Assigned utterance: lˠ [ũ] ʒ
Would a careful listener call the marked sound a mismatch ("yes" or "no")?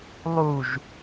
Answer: yes